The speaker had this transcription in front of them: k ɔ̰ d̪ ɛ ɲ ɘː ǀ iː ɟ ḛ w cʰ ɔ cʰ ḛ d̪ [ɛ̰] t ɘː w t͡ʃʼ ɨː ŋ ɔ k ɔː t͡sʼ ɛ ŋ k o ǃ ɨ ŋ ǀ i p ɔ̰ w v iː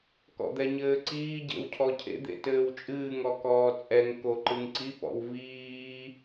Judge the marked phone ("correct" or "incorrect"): incorrect